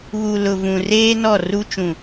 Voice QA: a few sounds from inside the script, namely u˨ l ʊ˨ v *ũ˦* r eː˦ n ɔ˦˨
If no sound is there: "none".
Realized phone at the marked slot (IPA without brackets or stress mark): ũ˨